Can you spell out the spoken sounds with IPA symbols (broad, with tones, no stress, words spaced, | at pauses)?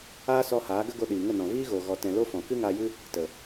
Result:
aː˦sɔ˧haː˨˦ ɡə˦ɡo˧ɗiː˨ ŋə˦˨nɔ̃˨ viː˦ɣo˨ ɣɔ˧tɛ̃˧ lo˦fɔ̃˨ kɨ˦ŋaː˧jɨ˦ | tə˨